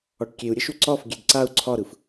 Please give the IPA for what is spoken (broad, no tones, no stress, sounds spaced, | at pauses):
ɒ ʈ kʲ e u̯ ɾʲ ə ʃ u ǀ ɒ f ɡʲ e d ǀ a u̯ ǀʰ ɒ ɾ ɯ f